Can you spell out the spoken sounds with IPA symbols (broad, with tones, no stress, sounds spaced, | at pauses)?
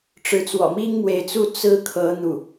ʈ͡ʂ ɻ̩˧˥ t͡s w ɔ̰˨˩ m i˥ ŋ m w e˧˥ ɪ̯ t͡s u˥˩ t͡s ɹ̩˥ kʰ ɤ˧˥ n̪ u˥˩